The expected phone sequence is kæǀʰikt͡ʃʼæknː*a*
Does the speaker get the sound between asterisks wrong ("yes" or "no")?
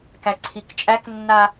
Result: no